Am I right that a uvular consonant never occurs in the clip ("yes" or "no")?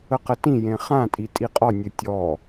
no